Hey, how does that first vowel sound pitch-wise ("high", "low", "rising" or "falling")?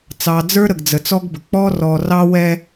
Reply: low